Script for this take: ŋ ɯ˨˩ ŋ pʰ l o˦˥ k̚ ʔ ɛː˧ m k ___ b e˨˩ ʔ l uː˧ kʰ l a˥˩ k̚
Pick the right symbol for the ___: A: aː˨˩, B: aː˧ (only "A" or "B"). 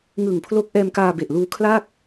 B